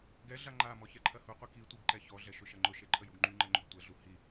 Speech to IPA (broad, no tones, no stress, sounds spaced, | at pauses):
ɡ ɛ ɮ a ŋ͡ǃ a m ɔ ç ɛ ǃʰ ɐ h u qʷ i k i tʷ i b ǃ ɛ ç ɔ ɮ ɛ ʃ ʊ ʃ ɐ ŋ͡ǃ ʊ ʃ e ǃʰ ə j u ɡ ŋ͡ǃ y ŋ͡ǃ ɛ ŋ͡ǃ ʏ b tʷ ɛ ɮ u h i